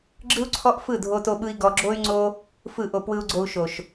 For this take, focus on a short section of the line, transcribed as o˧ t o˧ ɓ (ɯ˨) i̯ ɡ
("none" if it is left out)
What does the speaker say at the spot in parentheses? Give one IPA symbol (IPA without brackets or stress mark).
ɯ˧